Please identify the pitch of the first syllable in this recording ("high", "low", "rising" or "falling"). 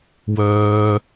low